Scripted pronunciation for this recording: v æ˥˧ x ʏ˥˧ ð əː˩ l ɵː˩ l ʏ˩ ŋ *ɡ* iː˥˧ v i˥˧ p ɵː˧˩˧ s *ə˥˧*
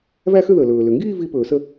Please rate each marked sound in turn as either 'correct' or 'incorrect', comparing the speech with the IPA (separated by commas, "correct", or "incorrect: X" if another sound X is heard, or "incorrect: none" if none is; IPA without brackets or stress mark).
correct, correct